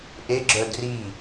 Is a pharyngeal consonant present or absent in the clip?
absent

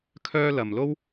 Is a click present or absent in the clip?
absent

